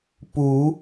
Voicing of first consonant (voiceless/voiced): voiceless